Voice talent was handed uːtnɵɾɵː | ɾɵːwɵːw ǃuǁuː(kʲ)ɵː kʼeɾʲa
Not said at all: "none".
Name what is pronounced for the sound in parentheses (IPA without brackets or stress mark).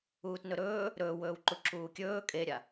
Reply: kʲ